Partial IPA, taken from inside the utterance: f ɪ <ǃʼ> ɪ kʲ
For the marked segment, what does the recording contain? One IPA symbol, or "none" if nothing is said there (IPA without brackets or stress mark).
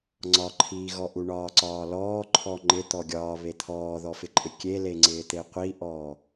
ǃʼ